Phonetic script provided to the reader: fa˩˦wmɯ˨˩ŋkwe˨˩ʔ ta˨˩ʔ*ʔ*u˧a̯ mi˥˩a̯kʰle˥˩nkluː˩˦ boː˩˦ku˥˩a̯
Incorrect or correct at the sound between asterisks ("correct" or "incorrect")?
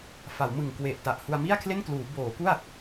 incorrect